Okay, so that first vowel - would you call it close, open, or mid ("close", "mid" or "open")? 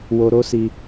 mid